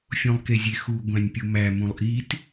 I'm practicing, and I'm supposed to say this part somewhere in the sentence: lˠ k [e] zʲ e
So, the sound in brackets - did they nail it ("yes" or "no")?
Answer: yes